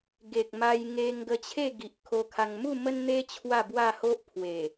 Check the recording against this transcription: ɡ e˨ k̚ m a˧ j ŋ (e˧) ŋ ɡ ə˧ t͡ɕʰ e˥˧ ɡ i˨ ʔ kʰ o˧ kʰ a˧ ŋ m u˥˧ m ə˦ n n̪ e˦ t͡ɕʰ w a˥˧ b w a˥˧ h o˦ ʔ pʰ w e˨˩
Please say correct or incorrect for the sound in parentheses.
correct